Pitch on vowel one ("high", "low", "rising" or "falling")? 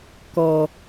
low